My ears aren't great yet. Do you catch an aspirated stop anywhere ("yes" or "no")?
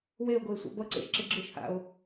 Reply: no